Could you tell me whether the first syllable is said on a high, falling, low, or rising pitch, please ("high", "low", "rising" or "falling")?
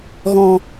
low